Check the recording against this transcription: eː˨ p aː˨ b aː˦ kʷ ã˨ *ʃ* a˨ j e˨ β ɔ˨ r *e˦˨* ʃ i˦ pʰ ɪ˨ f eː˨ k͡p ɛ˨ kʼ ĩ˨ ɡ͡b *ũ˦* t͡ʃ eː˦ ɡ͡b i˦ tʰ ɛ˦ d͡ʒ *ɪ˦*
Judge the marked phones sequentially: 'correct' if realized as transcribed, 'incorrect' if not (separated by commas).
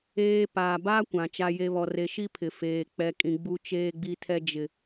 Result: incorrect, incorrect, incorrect, correct